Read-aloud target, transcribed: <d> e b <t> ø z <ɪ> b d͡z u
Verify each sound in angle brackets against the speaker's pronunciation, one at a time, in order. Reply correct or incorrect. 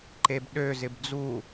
incorrect: ǃ, incorrect: ɗ, correct

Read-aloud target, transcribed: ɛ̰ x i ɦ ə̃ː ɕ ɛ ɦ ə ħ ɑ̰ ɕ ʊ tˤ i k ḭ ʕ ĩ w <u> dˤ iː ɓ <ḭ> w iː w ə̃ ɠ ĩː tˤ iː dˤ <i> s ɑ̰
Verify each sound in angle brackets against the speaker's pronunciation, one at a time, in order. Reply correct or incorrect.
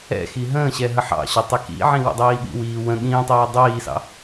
incorrect: ṵ, correct, incorrect: iː

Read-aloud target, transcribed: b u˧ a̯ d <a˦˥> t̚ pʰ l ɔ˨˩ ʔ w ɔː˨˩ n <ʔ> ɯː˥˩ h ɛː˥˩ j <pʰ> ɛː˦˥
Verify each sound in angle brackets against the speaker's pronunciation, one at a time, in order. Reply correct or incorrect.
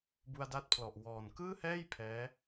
correct, incorrect: k, correct

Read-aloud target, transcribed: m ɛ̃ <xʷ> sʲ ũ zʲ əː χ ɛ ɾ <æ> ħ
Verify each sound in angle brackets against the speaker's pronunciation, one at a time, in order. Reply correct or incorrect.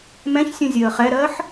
incorrect: ç, incorrect: ɜ

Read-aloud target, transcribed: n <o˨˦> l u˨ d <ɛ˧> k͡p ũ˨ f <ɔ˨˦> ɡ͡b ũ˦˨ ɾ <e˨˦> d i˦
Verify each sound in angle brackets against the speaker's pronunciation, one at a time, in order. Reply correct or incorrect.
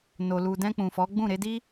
incorrect: o˨, incorrect: ɛ̃˧, correct, correct

